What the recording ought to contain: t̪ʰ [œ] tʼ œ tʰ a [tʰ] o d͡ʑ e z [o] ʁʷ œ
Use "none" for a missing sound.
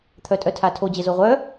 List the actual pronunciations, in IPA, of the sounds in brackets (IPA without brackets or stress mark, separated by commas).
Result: œ, tʰ, o